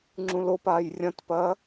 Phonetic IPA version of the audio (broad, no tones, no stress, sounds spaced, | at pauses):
ŋ͡ǁ ũ l o p aː j rʲ ɐ̃ t p ɐː